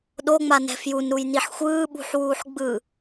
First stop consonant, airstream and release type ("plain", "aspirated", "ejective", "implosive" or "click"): implosive